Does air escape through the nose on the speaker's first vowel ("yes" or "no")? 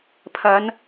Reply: no